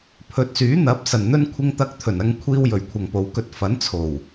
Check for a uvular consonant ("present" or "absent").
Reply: absent